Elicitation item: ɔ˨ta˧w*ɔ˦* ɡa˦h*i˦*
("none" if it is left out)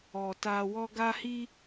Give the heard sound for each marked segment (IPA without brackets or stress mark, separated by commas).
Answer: ɔ˦, i˦